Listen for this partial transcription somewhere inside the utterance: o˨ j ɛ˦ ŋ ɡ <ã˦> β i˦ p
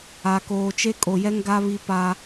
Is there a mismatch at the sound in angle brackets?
yes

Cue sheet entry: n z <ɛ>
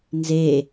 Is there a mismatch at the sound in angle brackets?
yes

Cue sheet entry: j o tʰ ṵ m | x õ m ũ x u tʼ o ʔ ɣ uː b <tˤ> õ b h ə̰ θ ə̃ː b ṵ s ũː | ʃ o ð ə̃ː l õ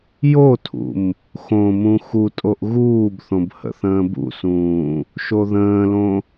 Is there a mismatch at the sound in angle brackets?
yes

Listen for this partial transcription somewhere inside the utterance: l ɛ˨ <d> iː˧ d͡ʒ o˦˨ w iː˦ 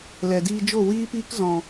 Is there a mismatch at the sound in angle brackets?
no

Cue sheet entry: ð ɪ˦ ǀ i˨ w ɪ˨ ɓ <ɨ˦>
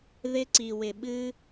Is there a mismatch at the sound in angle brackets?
no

